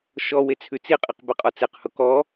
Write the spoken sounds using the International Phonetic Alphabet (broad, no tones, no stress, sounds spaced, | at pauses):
ʃ ɔ w e t͡sʰ ʉ t͡s i qʼ i q b e qʼ ɔ t͡s e q h ʊ k ɔ